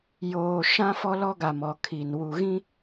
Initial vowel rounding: rounded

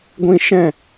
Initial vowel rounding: unrounded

